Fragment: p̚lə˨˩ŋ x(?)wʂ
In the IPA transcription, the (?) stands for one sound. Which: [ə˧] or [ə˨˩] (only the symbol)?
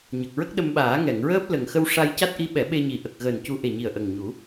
ə˧